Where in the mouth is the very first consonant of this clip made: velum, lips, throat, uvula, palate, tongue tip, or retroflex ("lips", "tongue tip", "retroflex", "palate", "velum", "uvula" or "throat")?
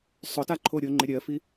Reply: tongue tip